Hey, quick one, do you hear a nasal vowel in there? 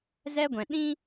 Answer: yes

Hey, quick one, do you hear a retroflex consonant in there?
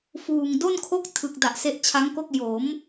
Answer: no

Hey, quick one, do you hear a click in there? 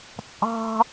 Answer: no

